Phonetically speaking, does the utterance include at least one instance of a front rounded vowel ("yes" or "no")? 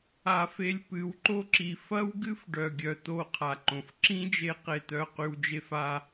yes